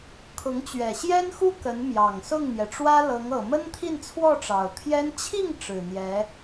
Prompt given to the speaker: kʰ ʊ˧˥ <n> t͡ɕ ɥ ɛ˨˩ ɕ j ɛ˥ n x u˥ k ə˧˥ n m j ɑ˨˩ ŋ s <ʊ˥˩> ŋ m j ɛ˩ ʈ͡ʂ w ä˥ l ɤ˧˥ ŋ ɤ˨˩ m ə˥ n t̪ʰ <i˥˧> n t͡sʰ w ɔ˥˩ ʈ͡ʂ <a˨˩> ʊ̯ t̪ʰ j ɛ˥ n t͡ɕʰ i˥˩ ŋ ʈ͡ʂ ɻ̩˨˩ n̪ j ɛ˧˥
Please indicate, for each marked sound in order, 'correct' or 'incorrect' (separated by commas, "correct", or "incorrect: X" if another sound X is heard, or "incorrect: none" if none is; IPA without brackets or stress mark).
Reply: incorrect: ŋ, correct, correct, incorrect: ɑ˨˩